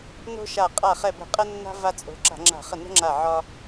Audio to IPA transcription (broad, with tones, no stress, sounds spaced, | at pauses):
n o̤˦ ʃ a˧˩ qʼ a˧˩ χ ɛ˧˩ b ə̤˧˩˧ qʼ ɛ˦ nː a̤˦ v a˦ t͡sʼ o̤˨˦ ǁ a̤˧˩˧ ŋ͡ǁ a̤˧˩˧ χ ə˧˩ n ə̤˦ ŋ͡ǁ a˧˩ ʕ ɒ˦